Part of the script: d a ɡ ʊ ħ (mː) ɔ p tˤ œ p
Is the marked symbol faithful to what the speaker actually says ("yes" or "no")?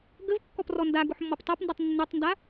yes